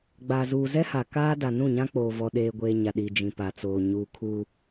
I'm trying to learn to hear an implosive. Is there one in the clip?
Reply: yes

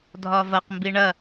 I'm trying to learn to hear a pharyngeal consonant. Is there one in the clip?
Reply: no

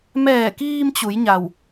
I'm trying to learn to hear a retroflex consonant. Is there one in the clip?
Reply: no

